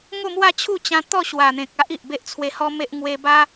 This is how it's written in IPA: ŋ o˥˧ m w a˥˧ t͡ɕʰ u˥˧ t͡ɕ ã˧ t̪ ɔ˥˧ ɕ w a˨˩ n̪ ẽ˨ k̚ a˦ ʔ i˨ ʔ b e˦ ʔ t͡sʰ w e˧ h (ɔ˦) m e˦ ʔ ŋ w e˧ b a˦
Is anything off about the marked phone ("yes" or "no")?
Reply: no